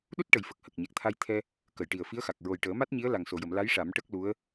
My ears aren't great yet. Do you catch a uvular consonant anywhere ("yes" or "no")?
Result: no